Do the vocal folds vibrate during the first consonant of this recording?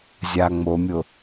yes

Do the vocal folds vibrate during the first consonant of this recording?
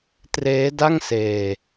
no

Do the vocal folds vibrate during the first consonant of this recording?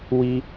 yes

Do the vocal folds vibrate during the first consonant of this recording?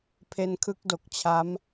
no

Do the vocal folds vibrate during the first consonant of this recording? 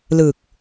yes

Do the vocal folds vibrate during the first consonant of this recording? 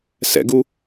no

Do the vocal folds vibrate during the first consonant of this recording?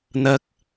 yes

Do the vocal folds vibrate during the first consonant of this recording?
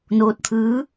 yes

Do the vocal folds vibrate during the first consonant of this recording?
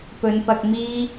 no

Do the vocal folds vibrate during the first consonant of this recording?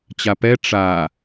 no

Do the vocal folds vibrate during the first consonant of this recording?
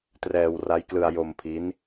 no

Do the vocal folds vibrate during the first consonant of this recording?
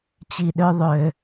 no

